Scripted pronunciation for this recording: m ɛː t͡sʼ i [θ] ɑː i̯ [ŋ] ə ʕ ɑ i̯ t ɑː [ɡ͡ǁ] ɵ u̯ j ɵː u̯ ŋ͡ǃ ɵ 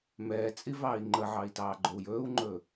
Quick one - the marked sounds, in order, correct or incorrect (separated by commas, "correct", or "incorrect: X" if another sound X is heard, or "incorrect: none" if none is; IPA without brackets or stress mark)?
incorrect: v, incorrect: ŋ͡ǃ, incorrect: ɡ͡ǃ